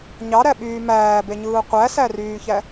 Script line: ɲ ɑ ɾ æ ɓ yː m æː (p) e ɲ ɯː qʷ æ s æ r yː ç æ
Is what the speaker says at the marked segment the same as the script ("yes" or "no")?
no